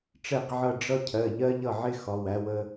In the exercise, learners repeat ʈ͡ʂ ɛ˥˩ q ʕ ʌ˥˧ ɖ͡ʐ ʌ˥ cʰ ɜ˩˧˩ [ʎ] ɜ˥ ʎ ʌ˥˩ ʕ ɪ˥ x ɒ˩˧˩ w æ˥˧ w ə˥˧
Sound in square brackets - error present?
no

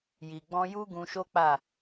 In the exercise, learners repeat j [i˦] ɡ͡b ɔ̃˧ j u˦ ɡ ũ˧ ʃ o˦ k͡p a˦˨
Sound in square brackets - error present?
yes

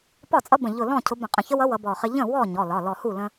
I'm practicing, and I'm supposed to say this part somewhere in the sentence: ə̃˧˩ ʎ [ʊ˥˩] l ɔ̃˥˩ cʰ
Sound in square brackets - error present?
yes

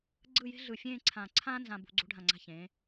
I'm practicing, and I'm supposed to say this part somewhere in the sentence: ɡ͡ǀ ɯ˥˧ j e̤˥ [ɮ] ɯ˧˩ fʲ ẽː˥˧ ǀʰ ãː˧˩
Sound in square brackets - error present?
no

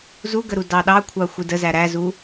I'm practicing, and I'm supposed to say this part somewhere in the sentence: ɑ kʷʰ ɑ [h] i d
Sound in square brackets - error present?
yes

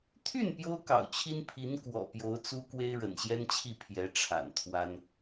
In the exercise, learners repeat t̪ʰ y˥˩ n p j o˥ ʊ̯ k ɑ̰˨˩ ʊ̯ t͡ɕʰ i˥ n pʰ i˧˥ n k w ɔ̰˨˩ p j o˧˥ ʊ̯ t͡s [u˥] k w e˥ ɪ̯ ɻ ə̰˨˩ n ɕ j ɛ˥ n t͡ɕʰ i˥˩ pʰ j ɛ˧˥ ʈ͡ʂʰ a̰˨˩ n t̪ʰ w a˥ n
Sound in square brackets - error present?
no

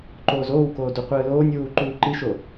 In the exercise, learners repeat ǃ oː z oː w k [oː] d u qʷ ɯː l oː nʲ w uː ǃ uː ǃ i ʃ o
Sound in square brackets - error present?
no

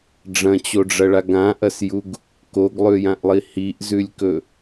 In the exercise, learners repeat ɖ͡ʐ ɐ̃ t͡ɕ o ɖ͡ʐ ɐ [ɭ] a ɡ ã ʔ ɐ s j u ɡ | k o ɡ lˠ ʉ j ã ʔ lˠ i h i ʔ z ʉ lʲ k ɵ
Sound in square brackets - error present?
no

